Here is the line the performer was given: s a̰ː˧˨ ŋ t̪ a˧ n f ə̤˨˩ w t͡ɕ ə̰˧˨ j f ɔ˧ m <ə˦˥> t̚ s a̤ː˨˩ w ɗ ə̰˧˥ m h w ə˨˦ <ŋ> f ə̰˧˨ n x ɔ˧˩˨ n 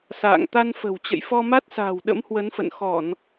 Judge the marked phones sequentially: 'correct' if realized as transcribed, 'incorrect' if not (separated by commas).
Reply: incorrect, incorrect